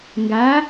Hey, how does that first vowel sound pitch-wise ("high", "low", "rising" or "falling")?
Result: rising